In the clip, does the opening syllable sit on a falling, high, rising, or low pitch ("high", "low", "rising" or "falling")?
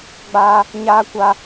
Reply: high